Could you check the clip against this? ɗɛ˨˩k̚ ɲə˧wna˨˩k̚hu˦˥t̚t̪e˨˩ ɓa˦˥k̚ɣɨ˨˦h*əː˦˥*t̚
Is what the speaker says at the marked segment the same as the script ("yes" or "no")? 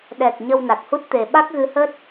yes